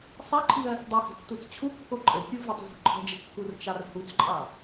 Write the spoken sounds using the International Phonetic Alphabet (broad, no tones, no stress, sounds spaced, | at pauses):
sˤ i ǃʰ i ɐ̯ | dˤ i h i̤ t͡s t u t͡s t͡ɕʰ u kː o ǃʼ ɘ kʲ u v ɜ tˤ v ṳ ǃʰ ə̤ d͡ʒ ə kː u r t͡ʃ ɑ r h u t͡s ǃʼ ɑ